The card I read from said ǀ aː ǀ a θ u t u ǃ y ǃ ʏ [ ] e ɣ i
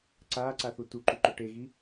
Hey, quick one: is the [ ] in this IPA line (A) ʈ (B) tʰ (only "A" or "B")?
A